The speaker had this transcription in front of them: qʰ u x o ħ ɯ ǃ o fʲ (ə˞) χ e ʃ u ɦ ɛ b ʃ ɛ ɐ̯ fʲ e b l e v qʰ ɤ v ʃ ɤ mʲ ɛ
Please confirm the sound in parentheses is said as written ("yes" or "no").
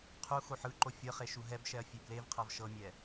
no